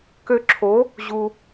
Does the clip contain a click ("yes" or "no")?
yes